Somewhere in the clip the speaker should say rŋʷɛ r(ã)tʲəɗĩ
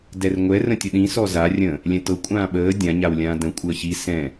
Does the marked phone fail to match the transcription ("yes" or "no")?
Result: yes